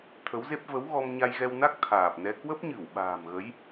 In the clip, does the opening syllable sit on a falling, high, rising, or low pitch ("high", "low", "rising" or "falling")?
rising